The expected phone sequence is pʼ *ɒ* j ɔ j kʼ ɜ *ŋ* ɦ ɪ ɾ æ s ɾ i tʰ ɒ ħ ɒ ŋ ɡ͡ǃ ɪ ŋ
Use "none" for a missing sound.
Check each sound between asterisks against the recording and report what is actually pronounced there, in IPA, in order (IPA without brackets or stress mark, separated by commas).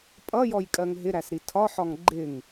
ʌ, ŋ